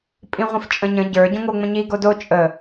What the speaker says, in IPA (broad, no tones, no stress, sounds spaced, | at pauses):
pʼ ĩ ʁʷ ĩ f t͡ʃʼ ə̃ ɲ ə̃ ɟ ə˞ ɟ õ ŋ o ŋ͡m ə̃ ɲ i ɡ o d o t͡ʃʼ ə